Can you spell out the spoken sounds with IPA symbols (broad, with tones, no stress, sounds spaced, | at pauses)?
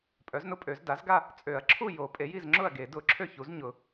pʼ œ˩˥ z n ʊ˥˨ pʼ ø˨˩˦ z d a˩˥ z ɡ a˥˨ | t͡sʼ ø˨˩˦ ɐ̯ ǁʰ u˥˨ j o˨˩˦ pʼ e˩˥ j i˥˨ z ŋ͡ǁ ʊ˥˨ ɐ̯ ɡ e˨˩˦ d ʊ˨˩˦ ǁʰ ø˥˨ ç u˩˥ z ɲ ʊ˨˩˦